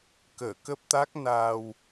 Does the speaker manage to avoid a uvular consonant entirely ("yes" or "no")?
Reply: yes